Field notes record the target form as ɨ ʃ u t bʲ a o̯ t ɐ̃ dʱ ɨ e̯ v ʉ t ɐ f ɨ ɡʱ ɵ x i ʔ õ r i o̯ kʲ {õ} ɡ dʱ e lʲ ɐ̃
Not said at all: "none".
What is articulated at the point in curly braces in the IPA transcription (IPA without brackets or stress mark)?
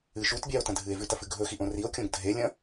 õ